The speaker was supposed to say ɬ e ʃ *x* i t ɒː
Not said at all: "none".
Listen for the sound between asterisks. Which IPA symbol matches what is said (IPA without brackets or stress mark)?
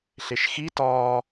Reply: x